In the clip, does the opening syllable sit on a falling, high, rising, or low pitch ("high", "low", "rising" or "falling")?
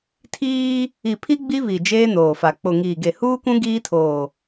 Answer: high